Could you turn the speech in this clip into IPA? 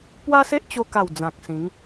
p w a˦ s e˦ ʔ t͡ɕ o˧ k a˨˩ w d͡z ã˨ k̚ s ĩ˨˦ ŋ

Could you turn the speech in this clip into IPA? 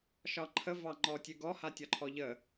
ʃ ɒ ǃʰ ə v ɑ ŋ͡ǃ ɔ tʲ ʉ ɡ ɔ h a tʲ ɒ ǃʰ ɔ ʎ ə

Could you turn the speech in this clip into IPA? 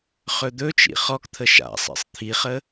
χ ɵ d̪ ɵ t͡ʃ ḭ χ ɔ k t̪ʰ ə ʃ a̰ sˤ ḭ sˤ t̪ʰ i χ ə

